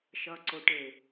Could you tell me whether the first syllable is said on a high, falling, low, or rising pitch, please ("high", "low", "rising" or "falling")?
low